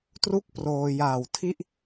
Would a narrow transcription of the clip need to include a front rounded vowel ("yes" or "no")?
no